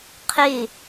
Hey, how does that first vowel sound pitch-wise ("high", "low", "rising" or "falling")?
falling